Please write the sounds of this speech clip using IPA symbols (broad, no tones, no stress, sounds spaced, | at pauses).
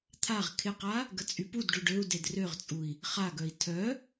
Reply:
t̪ʰ a ʁ kʰ ɪ q a | ɡ ə t͡sʼ y p u d ɖ u ɖ ø u̯ d e d r ø ʁ t͡sʼ u i̯ | χ a ɡ œ i̯ tʰ œ